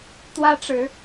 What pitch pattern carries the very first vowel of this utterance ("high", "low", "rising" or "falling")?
high